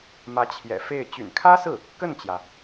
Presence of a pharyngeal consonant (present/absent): absent